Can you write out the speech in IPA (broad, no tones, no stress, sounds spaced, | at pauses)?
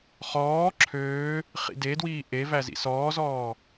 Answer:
χ ɔː ǁʰ øː | χ ḭ d e d w iː ʔ e v æ z ḭ s ɔː z ɔː